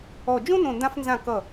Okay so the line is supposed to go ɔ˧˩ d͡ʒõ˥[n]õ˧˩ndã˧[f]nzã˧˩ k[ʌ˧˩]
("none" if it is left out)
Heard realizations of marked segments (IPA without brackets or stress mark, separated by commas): n, f, ʌ˧˩